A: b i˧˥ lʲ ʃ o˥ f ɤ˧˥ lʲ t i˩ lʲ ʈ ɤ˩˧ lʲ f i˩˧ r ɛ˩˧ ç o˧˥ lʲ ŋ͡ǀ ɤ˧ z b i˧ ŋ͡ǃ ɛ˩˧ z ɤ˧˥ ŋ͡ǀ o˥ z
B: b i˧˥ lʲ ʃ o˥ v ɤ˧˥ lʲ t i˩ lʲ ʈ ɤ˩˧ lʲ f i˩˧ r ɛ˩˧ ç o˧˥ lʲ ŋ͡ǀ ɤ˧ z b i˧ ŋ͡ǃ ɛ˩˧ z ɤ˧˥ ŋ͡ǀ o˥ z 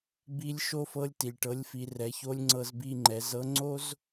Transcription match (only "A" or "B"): A